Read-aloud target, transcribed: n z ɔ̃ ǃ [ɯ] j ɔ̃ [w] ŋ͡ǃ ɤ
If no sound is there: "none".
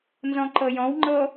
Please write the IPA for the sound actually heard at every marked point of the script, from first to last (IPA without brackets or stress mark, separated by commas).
ɤ, w